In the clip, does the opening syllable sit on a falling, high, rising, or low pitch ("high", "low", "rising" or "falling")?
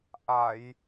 low